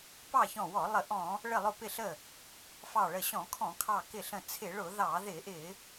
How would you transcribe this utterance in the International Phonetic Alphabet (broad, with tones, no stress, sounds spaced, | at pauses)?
p ɑ˧˩ ç ɔ̃˧˩ w ɔ˧˩˧ lˠ ə˧˩˧ ʔ ɔ̃˧˩˧ | ɭ ə˧˩ lˠ ʊ˧˩ p ɪ˧˩ ɬ ə˧˩ | f ɑ˧˩ ɭ ə˧˩ ɕ ɔ̃˧˩˧ kʰ ɔ̃˧˩˧ kʰ ɑ˧˩ k ɪ˧˩ ɬ ə̃˧˩ t͡sʰ ɪ˧˩˧ ɭ ʊ˧˩˧ ð ɑ˧˩˧ ð ɪ˧˩˧ ʔ ɪ˧˩˧